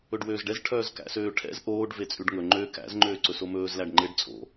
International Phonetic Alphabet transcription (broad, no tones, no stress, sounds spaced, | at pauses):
ɵ ɖ w øː z ɖ ɛ z ʈʰ œː z k æ̰ s øː ʈʰ ɛ̰ z ʔ oː ɖ v e t͡sʼ ʉ ɖ ŋ ɵ ŋ͡ǃ ø k æ̰ z ŋ͡ǃ øː ǀ ɵ s o m ɵː z l æ ɖ ŋ͡ǃ e ɖ t͡sʼ o̰